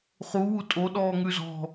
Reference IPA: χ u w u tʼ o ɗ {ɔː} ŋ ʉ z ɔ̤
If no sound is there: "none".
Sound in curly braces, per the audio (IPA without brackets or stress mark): ɔː